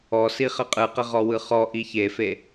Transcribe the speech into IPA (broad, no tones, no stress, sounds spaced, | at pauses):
ɔ s i χ ə qʼ ɯ q ə ʁ ɔ w ɯ χ ɔ ʔ i ç e f e